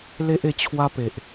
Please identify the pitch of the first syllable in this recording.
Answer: high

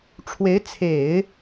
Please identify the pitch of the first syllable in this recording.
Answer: rising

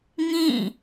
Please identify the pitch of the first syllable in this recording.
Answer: falling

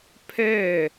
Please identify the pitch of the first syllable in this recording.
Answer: falling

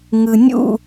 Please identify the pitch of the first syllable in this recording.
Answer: low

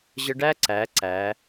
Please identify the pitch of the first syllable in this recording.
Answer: high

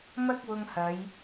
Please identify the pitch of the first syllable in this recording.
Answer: high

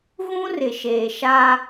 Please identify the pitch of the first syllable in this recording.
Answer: high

